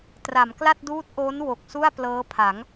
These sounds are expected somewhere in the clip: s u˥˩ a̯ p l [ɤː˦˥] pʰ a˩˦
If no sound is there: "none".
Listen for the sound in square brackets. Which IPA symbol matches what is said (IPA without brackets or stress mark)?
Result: ɤː˦˥